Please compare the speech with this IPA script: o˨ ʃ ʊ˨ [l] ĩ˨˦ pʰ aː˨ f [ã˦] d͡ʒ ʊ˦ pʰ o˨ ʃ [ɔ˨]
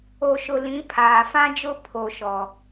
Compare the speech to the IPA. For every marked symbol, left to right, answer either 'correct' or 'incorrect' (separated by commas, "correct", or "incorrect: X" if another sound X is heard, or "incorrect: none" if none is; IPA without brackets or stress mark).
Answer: correct, correct, correct